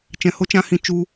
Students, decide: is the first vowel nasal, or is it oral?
nasal